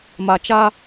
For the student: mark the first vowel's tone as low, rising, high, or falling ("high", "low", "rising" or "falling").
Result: low